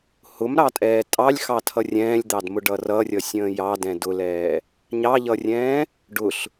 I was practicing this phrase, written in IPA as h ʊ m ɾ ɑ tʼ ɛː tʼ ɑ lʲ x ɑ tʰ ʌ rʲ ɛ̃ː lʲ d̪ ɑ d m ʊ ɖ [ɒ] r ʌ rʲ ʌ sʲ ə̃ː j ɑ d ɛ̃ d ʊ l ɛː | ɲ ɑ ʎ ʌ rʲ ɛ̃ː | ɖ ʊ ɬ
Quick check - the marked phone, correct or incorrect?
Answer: incorrect